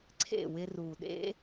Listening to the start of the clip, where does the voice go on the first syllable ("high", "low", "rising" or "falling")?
falling